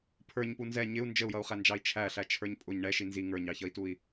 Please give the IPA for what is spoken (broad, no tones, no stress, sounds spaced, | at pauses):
pʰ ə˞ ɲ p u n z ɛ ɲ ɪ u̯ n d͡ʒ ə u̯ j ʌ u̯ χ æ n d͡ʒ ɑ i̯ t͡ʃʰ æ ɬ æ t͡ʃʰ ə˞ ɲ pʼ ʊ ɲ ɳ ɛ ʃ i n z i ŋ ə˞ ɲ ɑ ç ʌ i̯ t u i̯